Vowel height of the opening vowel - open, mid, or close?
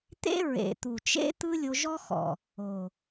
mid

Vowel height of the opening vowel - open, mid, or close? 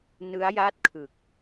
close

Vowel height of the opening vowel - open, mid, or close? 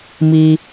close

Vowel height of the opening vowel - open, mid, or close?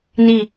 close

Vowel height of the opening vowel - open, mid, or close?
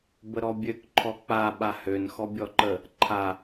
mid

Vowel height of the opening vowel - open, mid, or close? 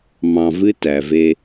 open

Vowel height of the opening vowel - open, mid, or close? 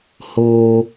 mid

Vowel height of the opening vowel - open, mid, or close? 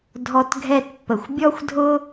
mid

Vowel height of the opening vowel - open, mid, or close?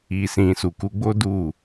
close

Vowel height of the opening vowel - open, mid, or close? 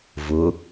close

